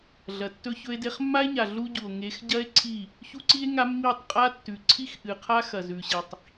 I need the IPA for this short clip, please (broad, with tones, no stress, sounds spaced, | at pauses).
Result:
ɮ ɐ˨ tː ɵ˦ ç ɵ˦ e̯ d e˦ χ mː a˦ e̯ ɲ a˨ ɮ u˦ ɟ u˨ o̯ ŋ e˨˦ x ɟ ɐ˦ e̯ ǀʰ i˦˨ | ç u˦ ǀ i˦ e̯ ŋ a˦ mː i˦˨ tˤ qʼ a˦ tː ʉ˨ ǀʰ i˦ x ʔ ɨ˨ qʰ a˦ x ɐ˨ z ʉ˨ ɕ i˨ tˤ